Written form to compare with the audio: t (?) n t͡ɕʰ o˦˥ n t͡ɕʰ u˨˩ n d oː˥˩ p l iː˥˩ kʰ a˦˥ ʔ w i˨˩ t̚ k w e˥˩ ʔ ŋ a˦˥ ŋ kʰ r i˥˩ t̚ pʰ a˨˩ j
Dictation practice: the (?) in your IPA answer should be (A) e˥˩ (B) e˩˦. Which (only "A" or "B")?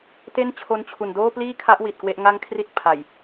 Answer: A